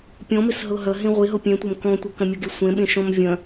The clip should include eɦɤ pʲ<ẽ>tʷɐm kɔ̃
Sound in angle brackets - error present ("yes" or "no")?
yes